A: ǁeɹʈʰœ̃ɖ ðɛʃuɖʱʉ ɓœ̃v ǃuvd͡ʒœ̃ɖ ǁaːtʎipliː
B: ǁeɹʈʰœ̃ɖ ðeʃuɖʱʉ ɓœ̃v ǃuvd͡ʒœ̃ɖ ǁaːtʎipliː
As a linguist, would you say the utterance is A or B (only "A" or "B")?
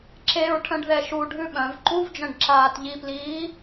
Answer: A